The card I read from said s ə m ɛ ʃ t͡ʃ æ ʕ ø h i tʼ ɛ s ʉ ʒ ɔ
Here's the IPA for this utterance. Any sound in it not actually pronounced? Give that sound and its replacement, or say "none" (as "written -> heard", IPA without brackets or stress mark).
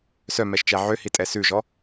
ə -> œ